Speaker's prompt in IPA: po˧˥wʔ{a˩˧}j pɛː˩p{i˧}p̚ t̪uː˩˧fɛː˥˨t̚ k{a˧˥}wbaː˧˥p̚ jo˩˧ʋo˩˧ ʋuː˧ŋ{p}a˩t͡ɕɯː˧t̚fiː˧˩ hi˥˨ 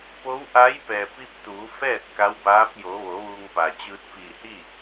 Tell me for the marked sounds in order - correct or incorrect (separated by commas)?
incorrect, correct, correct, correct